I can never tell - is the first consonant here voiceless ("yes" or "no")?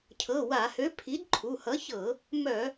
yes